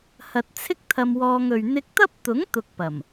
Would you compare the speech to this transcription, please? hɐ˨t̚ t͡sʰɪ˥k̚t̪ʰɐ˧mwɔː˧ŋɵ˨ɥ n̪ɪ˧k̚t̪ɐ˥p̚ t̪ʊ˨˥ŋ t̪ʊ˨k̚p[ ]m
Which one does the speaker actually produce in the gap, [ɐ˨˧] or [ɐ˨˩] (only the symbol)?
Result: ɐ˨˩